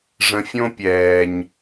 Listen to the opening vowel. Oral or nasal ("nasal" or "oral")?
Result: nasal